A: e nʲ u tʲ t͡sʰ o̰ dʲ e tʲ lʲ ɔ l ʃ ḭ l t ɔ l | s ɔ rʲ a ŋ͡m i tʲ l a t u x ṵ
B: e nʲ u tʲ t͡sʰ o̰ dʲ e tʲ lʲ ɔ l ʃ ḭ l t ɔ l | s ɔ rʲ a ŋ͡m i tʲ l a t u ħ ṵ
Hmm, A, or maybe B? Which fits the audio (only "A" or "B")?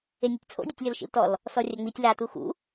A